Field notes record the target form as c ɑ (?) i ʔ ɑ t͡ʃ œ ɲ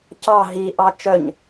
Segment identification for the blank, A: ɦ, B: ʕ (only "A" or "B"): A